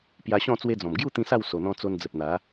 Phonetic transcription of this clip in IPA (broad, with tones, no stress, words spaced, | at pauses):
pja˧ɕɔ̃˥˧ t͡swe˧d͡zɔ̃˨˩mɡju˥˧ t̪ĩ˧ sa˥˧w so˨˩n̪ɔ̃˧ t͡so˧nd͡zə˨p̚n̪a˨˦